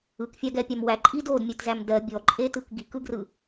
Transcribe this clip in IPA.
ɯkfʲaɡɛpʲam wæǃʼi dodmʲɛtzæm dɜ bʲɔǃʼetɯk ɡikɯɡrɯ

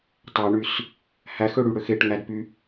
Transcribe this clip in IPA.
tˤɑɳys | hæxøɽyɽøx eʈŋædpy

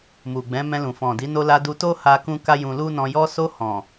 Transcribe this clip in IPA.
mu˨ɡ͡bɛ̃˨˦mɛ̃˧lũ˨ fɔ̃˨di˨˦ no˧la˧ du˧to˦ha˧kũ˧ ka˦jũ˧lu˦nɔ̃˧ jɔ˧so˧ hɔ̃˨

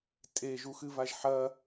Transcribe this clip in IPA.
tʼeʒuxɨvaʒ ħɐ

